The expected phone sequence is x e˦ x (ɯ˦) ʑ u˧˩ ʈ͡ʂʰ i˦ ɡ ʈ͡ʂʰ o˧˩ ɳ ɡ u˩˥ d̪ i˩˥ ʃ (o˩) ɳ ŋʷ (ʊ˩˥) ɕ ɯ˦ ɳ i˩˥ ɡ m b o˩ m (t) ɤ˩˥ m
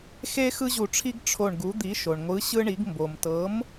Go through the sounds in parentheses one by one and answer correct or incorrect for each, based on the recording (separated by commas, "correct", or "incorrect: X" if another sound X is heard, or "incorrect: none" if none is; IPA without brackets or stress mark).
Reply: correct, correct, incorrect: ɯ˩˥, correct